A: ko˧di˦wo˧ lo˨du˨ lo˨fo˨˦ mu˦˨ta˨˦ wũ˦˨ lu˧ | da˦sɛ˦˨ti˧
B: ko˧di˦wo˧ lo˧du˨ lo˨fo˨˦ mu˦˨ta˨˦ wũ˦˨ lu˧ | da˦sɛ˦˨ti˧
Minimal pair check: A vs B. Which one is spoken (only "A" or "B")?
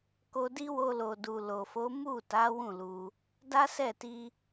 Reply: A